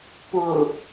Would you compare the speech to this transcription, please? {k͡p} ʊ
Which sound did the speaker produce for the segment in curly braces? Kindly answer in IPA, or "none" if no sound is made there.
p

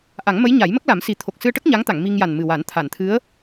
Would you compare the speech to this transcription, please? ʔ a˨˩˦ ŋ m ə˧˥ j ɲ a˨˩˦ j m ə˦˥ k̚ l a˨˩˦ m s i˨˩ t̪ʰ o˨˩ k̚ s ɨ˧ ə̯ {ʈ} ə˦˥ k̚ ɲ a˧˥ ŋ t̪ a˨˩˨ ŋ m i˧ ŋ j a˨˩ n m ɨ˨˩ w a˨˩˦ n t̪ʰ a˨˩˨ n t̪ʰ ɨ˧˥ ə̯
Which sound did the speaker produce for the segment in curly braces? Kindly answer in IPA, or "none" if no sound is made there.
ʈ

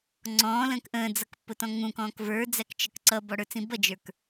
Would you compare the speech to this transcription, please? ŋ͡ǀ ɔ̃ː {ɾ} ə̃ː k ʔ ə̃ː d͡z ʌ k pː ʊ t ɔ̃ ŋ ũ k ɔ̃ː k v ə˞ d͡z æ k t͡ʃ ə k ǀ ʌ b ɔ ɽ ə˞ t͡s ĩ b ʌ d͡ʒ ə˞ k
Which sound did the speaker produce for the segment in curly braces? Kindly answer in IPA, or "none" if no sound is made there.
l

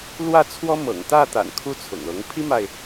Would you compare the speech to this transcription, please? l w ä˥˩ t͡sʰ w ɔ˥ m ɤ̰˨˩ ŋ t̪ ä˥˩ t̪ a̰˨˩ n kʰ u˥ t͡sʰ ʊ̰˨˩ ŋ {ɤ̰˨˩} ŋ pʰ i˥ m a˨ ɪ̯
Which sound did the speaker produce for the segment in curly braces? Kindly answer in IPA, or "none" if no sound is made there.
ɤ˧˥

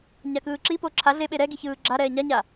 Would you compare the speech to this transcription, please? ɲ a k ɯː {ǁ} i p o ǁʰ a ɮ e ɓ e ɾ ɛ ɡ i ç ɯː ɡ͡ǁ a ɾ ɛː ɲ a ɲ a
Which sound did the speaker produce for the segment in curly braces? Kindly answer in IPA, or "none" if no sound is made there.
ǁ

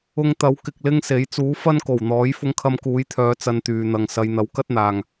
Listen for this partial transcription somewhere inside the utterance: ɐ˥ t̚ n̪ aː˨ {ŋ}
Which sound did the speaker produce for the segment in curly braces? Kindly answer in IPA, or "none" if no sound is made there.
ŋ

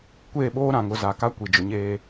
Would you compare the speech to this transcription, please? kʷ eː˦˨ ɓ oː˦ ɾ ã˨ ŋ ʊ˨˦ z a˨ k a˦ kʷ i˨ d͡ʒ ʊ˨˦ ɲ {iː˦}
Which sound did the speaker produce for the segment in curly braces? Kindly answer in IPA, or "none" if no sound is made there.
eː˦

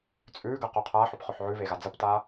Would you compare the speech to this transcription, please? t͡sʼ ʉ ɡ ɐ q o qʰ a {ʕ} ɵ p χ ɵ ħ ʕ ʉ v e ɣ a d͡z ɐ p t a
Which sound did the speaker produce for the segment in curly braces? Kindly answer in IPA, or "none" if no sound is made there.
ħ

